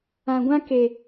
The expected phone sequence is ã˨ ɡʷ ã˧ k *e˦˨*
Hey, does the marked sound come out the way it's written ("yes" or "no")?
no